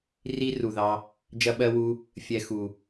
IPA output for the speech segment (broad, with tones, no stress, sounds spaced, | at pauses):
r i˧ r u˨ ð ɑ˧ | d͡ʒ ɐ˧ ɓ ɜ˧ w u˧ | fʲ ɛ˨ x u˨